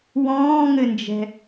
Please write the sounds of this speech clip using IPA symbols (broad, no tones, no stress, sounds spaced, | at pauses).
w ɔ̃ː ŋ ɘ n d͡ʒ ɛ̤